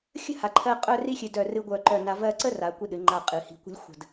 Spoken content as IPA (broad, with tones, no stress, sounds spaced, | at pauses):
xʲ ə̤˥ h a˩˧ ǃʰ ɜ˧ qʼ œ˥˧ r i˥ xʲ ɨ˧ d œ˧˩ r ɨ˧ ɡʷ œ˧˩ ǃ œ˧˩ n a˧ v ɜ˥˧ ǀ ə˥ r a˩˧ kʷ i˧ ɗ ɨ˩˧ ŋ͡ǃ a˧˩ qʼ ɨ˩˧ h i̤˧˩ kʷ ə̤˥ lʲ xʷ ə̤˧˩ d